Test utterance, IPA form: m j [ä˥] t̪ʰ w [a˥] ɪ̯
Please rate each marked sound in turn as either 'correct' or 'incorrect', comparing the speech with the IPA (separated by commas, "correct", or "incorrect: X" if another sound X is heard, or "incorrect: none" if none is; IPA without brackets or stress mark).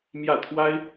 incorrect: ä˥˩, correct